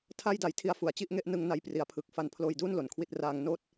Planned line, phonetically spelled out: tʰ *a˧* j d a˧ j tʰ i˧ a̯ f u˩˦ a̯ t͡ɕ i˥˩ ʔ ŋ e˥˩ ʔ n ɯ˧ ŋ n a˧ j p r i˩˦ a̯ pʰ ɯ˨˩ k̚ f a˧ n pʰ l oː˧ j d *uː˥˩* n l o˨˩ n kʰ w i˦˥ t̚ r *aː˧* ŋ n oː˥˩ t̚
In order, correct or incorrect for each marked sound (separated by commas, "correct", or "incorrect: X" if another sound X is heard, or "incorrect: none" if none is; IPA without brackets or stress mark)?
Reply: incorrect: a˥˩, correct, correct